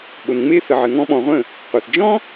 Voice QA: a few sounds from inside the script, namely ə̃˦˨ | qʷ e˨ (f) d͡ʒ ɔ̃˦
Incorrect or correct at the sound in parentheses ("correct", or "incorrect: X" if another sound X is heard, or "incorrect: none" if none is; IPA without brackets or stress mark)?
incorrect: θ